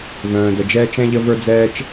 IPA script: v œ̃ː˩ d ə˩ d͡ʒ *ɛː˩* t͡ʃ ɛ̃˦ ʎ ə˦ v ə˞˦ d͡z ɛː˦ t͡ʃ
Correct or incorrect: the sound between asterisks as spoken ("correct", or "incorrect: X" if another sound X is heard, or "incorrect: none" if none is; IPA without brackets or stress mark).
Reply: incorrect: ɛː˦